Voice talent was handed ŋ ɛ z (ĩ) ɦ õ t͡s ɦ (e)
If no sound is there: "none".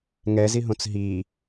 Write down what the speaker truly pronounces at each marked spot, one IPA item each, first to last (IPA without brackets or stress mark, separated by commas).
i, i